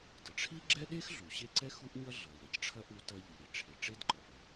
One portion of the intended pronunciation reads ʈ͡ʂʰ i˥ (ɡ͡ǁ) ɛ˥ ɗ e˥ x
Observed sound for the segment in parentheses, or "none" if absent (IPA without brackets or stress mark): ɡ͡ǁ